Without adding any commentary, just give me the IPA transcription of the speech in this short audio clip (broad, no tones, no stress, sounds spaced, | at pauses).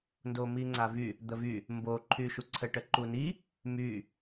n d o m i ŋ͡ǀ a v y | d̪ ə v y | m b o ǃʰ y ʃ u ǀʰ ə ʈ ə ǃ u n i | m y